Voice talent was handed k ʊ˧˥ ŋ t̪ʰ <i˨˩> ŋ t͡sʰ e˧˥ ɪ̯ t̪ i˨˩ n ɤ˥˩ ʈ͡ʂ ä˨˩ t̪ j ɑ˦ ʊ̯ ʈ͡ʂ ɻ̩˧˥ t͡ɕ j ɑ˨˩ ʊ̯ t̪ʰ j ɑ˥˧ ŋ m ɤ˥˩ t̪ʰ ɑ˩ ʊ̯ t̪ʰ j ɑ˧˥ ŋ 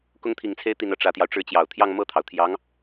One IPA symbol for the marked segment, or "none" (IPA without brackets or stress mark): i˨˩